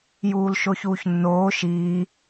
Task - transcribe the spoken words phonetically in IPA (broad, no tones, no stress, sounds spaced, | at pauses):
j uː l ʃ o ç uː ç nː oː ʃ iː